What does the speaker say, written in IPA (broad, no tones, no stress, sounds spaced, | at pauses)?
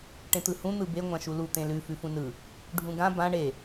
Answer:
ʈ ẽ t̪ ɯ h ũ n̪ ɯ b e ŋʷ ã ʃ u l u t̪ ẽ l ʉ f ʉ f ũ n ɯ | ɖʱ ũ ɡ ã b ã ɳ e